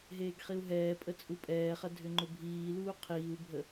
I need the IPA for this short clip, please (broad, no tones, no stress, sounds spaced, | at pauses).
ɦ eː ɡ χ i u̯ ɦ ɛː pʼ ə t͡sʼ u pʼ ɛː χ ɐ dʱ ʏ ŋ͡ǃ ʊ bʱ iː l uː qʰ iː u̯ bʱ ə